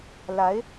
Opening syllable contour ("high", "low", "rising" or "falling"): rising